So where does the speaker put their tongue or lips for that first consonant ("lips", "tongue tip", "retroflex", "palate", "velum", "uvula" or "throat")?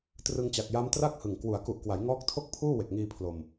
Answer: tongue tip